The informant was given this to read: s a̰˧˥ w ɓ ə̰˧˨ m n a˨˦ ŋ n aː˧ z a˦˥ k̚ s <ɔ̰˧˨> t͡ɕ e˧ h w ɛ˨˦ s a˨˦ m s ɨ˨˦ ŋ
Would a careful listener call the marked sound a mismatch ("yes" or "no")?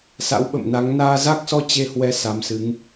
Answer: yes